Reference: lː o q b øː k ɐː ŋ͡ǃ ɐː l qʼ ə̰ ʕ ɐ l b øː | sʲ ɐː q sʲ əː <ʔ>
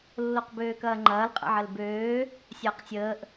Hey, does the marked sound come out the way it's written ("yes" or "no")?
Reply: yes